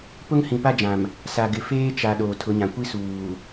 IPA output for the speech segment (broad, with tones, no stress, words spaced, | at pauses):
pʊ˦ŋhĩ˨pa˦d͡ʒã˨m | sa˨ ɡɪ˨ feː˦t͡ʃa˨ ɗoː˨tʰʊ˨˦ɲã˨ kʷi˦suː˨